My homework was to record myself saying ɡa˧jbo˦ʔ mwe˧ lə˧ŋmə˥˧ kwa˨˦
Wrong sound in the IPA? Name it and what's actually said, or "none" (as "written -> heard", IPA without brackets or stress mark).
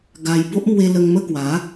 none